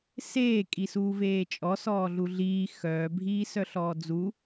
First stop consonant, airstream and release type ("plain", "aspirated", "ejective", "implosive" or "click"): ejective